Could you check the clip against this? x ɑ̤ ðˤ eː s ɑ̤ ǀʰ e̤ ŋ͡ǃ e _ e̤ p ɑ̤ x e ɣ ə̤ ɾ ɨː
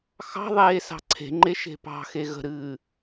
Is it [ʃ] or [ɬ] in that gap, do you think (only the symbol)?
ʃ